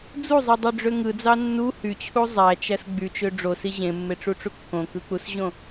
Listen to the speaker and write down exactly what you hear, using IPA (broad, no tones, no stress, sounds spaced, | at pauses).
d͡z u zˤ i dˤ ø ɖ͡ʐ ø ŋ ɯ d͡z ɑ nː u h y t͡ɕʰ u zˤ æ t͡ʃ æ s ɡ͡b y t͡ʃ ø ɖ͡ʐ o s i ʑ ẽ mː e ʈ͡ʂ u ʈ͡ʂ u kː õ k ɯ k͡p u s ʑ õ